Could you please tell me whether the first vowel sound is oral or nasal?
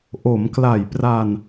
oral